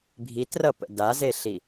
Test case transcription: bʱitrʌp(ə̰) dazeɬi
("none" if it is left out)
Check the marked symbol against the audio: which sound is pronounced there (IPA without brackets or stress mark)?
ə̰